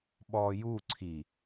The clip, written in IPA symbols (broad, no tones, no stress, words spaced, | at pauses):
ɓɔju ǀʰi